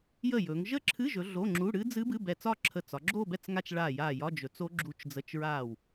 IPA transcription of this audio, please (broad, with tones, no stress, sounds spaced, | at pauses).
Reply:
j ə˥˩ j ɵ˩˧ ŋ ʒ ə˥˧ ǁʰ ɨ˧˥˧ ʒ ɵ˩˧ ɮ o˧˥˧ ŋ͡ǁ u˧˥˧ ɽ ɨ˦˥ d͡z ɨ˦˥ b ɨ˧˥˧ b ɛ˧˩ t͡s ɒ˥˧ ǁʰ ə˧˩ t͡s ɒ˩˧ ɡ͡ǁ o˥˧ b ɛ˥˩ t͡s ŋ a˥˧ t͡ʃ ɭ a˧˩ j a˧˩ j ɒ˧˥˧ d͡ʒ ɵ˩˧ t͡s o˦˥ ɡ͡ǁ u˦˥ t͡ʃ d͡z ə˧˥˧ t͡ʃ ɹ a˥˩ w